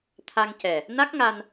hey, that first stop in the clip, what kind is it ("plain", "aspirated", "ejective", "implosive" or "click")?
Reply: aspirated